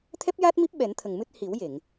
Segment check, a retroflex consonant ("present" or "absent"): absent